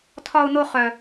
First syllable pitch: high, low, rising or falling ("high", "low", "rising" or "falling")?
high